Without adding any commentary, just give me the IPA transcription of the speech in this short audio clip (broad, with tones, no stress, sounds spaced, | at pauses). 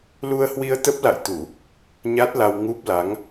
l u˧ ə̯ h w i˧ ə̯ t̪ ə˦˥ p̚ l a̰˧˨ j t̪ u˧˩˨ | ɲ a˦˥ t̚ l a˧ w ŋ u˦˥ p̚ l a˨˦ ŋ